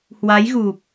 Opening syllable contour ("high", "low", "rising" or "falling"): rising